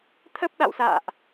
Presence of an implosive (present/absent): present